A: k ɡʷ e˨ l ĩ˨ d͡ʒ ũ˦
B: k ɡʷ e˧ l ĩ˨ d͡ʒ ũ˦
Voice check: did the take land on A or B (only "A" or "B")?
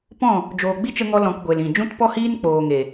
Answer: A